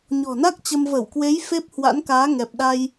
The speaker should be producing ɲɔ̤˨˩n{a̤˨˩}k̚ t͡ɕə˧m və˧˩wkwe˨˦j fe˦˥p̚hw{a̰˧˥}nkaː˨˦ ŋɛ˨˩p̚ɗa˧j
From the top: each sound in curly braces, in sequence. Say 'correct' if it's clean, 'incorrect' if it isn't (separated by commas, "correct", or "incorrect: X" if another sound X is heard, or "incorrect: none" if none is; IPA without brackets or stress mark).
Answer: incorrect: a˦˥, correct